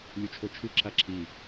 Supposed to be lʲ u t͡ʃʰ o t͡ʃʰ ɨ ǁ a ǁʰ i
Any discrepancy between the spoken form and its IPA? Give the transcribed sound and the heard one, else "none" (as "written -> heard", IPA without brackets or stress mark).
none